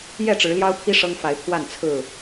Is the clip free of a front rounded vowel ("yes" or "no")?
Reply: yes